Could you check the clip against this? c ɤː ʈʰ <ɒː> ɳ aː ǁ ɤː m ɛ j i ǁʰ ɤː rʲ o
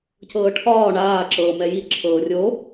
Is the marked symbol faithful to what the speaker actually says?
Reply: yes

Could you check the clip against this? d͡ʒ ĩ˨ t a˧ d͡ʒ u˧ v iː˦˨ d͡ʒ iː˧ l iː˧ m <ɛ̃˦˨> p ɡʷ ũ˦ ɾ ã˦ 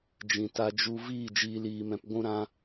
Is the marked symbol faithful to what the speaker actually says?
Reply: no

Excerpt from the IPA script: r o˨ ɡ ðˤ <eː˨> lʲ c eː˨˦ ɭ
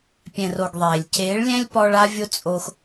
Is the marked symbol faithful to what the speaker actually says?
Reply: yes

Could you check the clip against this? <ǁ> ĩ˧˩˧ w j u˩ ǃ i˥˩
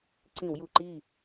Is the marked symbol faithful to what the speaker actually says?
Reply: no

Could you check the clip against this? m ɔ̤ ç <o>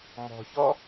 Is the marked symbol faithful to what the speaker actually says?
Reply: no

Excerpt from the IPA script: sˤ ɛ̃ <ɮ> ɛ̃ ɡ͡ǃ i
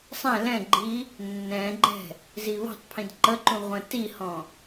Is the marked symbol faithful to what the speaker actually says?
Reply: no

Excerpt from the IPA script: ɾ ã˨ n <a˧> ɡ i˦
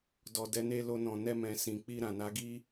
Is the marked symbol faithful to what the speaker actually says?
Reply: no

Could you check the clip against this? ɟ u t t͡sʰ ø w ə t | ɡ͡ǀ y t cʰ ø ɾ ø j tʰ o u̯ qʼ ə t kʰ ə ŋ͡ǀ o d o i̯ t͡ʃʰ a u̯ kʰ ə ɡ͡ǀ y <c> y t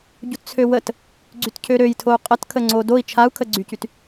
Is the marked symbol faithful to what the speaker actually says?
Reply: yes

